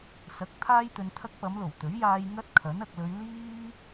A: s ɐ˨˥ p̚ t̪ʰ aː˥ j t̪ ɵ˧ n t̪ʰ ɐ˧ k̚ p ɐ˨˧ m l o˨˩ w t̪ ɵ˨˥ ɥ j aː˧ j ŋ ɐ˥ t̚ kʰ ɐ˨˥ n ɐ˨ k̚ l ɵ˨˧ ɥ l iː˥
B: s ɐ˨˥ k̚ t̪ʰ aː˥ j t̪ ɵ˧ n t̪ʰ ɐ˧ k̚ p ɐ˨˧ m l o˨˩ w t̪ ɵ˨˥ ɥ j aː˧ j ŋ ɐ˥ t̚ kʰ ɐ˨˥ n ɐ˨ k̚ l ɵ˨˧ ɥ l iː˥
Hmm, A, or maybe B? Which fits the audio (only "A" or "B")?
B